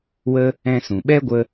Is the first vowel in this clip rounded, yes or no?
no